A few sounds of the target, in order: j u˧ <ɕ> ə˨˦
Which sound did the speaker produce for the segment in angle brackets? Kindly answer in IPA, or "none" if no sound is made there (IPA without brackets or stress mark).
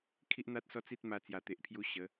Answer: ɕ